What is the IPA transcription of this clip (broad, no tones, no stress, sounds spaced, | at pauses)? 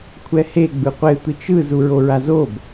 kʷʰ ɛ h e ɡ͡b ɯ qʷ e tʷ i t͡ʃ ɯ z u ɹ o ɹ a z o b